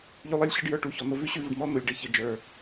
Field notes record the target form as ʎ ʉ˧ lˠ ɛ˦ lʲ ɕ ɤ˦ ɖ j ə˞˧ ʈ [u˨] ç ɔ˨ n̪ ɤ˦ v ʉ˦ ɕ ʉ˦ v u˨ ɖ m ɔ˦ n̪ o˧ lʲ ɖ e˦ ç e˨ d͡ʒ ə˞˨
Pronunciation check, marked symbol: incorrect: u˧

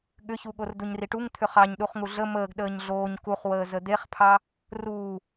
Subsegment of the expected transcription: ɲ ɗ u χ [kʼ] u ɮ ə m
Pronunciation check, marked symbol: incorrect: ŋ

